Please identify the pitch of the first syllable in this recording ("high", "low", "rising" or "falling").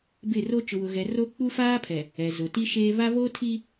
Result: falling